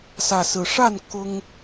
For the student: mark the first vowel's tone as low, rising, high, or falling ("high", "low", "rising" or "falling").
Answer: low